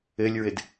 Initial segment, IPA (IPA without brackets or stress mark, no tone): ɘ